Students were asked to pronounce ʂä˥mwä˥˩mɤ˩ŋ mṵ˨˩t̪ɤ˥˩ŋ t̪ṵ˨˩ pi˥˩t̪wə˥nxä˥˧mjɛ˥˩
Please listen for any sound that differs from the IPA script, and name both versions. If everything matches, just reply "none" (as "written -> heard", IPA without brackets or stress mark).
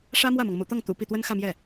none